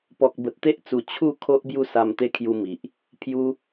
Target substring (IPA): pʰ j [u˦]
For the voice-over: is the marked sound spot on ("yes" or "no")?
yes